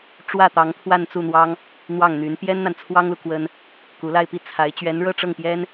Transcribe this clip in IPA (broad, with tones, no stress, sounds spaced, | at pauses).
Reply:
ʈ͡ʂ w ä˥˩ t̪ ɑ˧˥ ŋ t̪ʰ w a˥˧ n t͡s u˥˩ n̪ w ɑ˥ ŋ | n̪ w ɑ˥˩ ŋ n̪ y˧˥ n p j ɛ˥ n n̪ a˨ n t͡sʰ w ɑ˥ ŋ l u˨ k w ə˥ n | k u˧˥ l a˥˧ ɪ̯ p i˥˩ t͡sʰ a˧˥ ɪ̯ t͡ɕ ɥ ɛ˧˥ n ɻ ɤ˥˧ ʈ͡ʂ ɤ˥˩ ŋ p j ɛ˥ n